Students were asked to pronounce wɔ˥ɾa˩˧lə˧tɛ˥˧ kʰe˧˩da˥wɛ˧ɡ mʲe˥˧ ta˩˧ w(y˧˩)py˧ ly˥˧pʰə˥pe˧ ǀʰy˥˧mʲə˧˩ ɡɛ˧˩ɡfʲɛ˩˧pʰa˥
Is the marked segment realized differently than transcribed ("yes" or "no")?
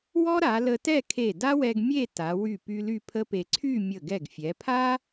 no